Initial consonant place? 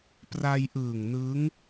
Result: labial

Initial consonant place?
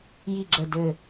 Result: palatal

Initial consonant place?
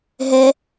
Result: glottal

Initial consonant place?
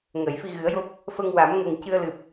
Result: velar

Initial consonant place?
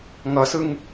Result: velar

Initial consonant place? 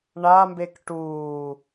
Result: retroflex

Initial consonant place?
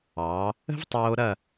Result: labial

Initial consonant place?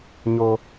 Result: palatal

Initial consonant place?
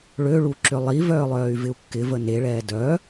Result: retroflex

